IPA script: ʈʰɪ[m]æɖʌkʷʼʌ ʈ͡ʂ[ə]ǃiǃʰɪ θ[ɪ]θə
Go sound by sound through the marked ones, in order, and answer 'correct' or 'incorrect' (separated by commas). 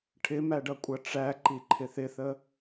correct, incorrect, correct